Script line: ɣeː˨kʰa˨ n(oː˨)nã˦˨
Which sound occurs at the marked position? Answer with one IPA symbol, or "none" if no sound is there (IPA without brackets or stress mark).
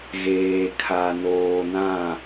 oː˨